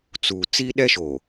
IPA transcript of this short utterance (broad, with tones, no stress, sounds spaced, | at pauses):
t͡s uː˨ t͡s iː˦ ɗ ɛ˦ ʃ oː˨